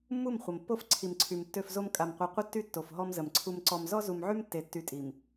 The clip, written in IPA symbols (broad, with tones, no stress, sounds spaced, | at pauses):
mː u˦˨ m χʷ ə˨ m pː o˦ f ǀʰ i˨ m ǀʰ y˨ m tː ø˨ f z o˦ m kʼ a˨ m qʷ e˨ qʷ ə˦ tː y˦ tː o˨ f ɦ ɔ˦ m z ə˨ m ǀʰ u˦ m ǀ ɔ˨ m z ɔ˦ z u˨ m ʕ y˦ m tː e˨ tː y˨˦ tʼ i˨ m